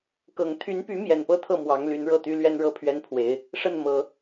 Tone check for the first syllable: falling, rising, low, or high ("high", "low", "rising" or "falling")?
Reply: low